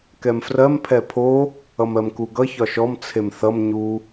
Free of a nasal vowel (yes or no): yes